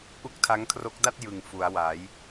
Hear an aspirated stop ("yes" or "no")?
yes